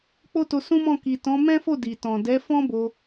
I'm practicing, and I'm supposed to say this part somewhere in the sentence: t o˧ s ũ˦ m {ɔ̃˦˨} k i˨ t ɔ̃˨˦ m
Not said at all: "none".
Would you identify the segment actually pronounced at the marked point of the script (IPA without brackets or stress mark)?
ɔ̃˦˨